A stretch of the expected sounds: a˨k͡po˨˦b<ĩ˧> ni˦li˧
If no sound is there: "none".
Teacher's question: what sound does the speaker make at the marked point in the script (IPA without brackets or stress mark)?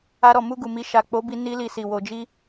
i˧